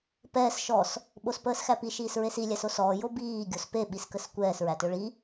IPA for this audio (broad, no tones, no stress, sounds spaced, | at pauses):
p ɛː s ʃ ɔ s | ɓ o s p əː s x æ p i ʃ iː s ɹ e s i lʲ æ s o s ɔː j o b iː ɡʲ o s p e ɓ i s k ə s kʷ ɛː s ɹ æ t ø ɭ i